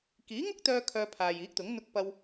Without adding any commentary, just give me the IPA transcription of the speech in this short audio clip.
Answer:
kiː˨˥ŋʊ˥k̚t̪œː˧ kʰœː˧pʰaː˨jiː˨˥k̚t̪ʊ˨˥ŋ n̪ʊ˧k̚pɐ˧w

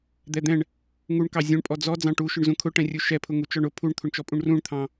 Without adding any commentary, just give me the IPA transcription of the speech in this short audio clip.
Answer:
d̪ɛd̪ɛ̃ɳ | ŋuɳkɑ zʲũɳpʼɔ d͡zɔ d͡zɑ̃ʈuʃʊɳzũ kʰʊʈɛ̃rʲu ʃɛpʰʊ ŋut͡ʃɔɳʊ pʰuɳt̪ʰʊɳt͡ʃɔpʼũɳ rũɳt̪ʰɑ̃

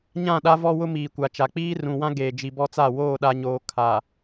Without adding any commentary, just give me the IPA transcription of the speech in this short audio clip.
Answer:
ɲã˦˨ɗa˦ vɔ˦wʊ˦ miː˨kʷa˨t͡ʃa˨ k͡piː˦rũ˨wã˦ ɡeː˨d͡ʒi˨bɔ˦t͡sa˦˨ woː˦˨ɗa˨ɲoː˨ kʰa˨

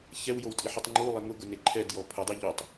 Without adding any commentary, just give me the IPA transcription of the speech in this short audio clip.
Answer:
çɛwjowtʼiħutˤ ŋ͡ǃulˠe ŋʊɡʊne ǃʰɛdjɔ pʰʊdˤe ʎotˤ

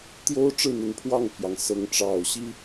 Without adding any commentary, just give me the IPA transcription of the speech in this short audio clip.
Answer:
t̪jo˦ʊ̯ ʈ͡ʂɻ̩˥˨n̪ə˨˦npʰwɑ˥˨ŋpʰjɑ˩ŋ sɤ˨˦ŋʈ͡ʂɑ˨˩ʊ̯ ɕi˦

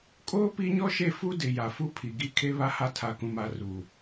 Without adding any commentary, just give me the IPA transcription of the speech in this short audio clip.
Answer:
kʼoː˦ pi˦ɲɔ˦ʃe˦˨ fu˦dɪ˨ ja˨fu˦pʰi˨ɡi˦ kʰe˦βa˦ha˦ tʰa˨kũ˨ma˦˨ ru˨

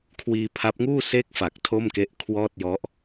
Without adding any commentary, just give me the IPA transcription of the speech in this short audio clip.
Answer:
kʰwiː˧pʰa˦˥p̚ŋuː˥˩ se˥˩k̚fa˨˩k̚ tʰo˥˩mke˦˥ʔkʰwɔː˥˩t̚ jɔ˦˥ʔ

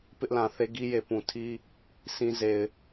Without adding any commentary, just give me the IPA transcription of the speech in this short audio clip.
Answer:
pɪ˦ʔlã˨θe˦ ɡi˦je˨pũ˨tʰi˦ | sĩ˦ze˨ɪ̯

